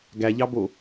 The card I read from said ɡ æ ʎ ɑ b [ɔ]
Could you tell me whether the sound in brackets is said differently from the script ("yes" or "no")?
yes